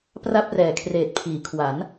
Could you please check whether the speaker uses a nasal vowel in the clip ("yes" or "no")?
no